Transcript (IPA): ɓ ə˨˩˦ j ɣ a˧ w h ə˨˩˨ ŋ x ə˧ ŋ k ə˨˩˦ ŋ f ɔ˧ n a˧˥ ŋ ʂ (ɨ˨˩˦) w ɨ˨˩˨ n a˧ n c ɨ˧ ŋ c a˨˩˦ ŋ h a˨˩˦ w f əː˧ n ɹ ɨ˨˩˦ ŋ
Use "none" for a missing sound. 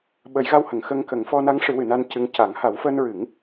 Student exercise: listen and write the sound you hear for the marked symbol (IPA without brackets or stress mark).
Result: ɨ˨˩˦